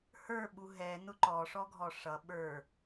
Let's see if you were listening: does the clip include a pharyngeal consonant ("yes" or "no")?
no